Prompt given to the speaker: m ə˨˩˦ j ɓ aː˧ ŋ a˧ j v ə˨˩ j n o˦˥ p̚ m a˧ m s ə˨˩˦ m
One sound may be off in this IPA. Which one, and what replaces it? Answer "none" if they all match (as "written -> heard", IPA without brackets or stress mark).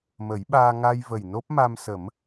none